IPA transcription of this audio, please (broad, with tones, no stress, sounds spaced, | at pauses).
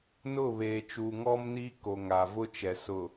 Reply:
n ʊ˦˨ β eː˨ t͡ʃ uː˨ ŋ ɔ˦ m n iː˦ k o˨ ŋ a˨ v ʊ˦ t͡ʃ ɛ˨ s ʊ˨